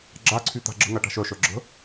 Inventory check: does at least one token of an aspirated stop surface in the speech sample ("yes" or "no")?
yes